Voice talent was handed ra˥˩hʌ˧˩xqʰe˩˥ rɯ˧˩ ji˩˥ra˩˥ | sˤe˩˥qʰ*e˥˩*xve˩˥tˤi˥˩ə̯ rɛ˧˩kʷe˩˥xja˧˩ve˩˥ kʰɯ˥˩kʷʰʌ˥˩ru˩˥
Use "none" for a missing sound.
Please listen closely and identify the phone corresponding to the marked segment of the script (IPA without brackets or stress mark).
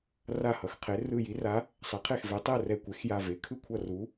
e˥˩